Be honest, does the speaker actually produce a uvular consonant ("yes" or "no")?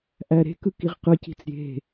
yes